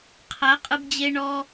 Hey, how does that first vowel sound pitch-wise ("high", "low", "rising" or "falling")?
rising